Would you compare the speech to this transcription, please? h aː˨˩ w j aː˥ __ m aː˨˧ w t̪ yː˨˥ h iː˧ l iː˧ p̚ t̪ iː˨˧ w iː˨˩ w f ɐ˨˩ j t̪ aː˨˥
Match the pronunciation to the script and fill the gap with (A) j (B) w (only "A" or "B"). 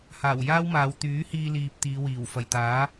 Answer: B